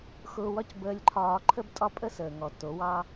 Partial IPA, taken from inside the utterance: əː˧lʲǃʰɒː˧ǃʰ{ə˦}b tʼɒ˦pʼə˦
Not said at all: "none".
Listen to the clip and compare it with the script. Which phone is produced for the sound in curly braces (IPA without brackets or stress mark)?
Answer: ə˦